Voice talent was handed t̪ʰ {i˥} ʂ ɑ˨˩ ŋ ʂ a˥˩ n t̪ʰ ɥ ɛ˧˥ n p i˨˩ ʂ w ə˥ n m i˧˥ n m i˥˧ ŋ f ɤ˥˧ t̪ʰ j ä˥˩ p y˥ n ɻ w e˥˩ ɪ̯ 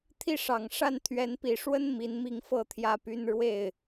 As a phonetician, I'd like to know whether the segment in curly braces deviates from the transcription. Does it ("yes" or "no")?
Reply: yes